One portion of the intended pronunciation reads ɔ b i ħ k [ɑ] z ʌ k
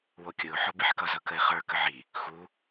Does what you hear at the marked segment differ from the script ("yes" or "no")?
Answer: yes